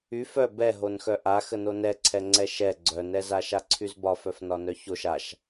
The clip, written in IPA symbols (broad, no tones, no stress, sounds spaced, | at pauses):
y f œ b ɛ ɦ o n x œ ʔ a x ə n o n ɛ ǀʰ ɛ ŋ͡ǀ ɛ ʃ ɛ ɡ͡ǀ œ n ɛ z a ʃ a ǀʰ y z b ɒ f œ f n ɒ n œ ç o ʃ a ʃ